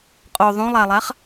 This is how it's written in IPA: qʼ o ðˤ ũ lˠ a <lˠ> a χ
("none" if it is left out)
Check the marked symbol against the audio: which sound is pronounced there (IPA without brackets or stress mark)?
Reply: lˠ